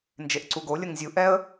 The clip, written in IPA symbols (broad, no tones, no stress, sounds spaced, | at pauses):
n d͡ʒ e ʔ ǀ u ɡ o lʲ ə ŋ zʲ u ʔ ɛ ə̯